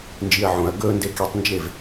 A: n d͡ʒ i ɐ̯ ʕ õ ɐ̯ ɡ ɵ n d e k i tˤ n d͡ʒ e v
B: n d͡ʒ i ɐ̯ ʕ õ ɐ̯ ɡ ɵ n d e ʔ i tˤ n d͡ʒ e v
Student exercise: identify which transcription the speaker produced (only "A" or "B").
A